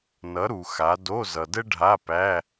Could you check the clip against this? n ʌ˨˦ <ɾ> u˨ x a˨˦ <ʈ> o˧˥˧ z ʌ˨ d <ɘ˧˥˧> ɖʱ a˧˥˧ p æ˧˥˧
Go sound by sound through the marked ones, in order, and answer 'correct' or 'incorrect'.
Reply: correct, incorrect: d, incorrect: ɘ˥

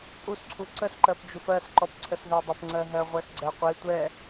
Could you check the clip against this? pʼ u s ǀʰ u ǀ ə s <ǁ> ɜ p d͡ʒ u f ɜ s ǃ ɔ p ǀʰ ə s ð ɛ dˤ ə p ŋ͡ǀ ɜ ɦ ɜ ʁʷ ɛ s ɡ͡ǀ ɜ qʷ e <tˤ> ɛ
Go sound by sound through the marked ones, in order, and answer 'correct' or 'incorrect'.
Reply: incorrect: ǃ, incorrect: tʷ

